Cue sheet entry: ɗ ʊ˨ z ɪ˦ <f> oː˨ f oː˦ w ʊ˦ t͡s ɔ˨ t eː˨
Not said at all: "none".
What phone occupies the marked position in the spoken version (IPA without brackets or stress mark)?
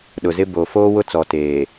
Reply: b